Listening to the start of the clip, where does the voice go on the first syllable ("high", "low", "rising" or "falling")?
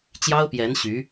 high